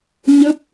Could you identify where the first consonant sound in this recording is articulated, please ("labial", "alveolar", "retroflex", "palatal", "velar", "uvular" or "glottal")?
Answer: palatal